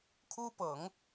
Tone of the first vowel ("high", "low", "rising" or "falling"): high